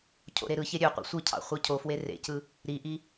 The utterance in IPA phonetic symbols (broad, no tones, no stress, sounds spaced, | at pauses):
cʰ o̰ ɾ e ɾ ɯ ç e ɾʲ ø qʷ ḭ sʷ ɯ cʰ ɑ̰ χʷ ɯ cʰ o f w e r ḛ c ɯ | ɾ i ʔ i